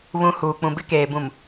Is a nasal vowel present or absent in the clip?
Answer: present